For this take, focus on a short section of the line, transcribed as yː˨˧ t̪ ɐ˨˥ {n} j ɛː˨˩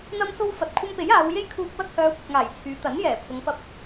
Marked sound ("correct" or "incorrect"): correct